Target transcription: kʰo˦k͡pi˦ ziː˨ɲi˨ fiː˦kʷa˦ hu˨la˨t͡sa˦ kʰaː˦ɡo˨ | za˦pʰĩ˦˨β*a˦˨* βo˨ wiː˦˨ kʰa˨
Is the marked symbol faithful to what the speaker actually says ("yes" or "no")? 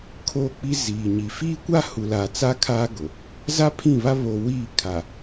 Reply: no